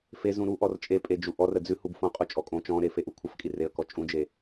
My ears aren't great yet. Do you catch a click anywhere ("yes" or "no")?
no